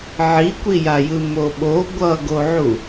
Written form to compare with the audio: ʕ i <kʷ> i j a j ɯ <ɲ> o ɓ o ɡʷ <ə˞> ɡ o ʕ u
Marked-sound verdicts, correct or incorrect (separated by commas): correct, incorrect, incorrect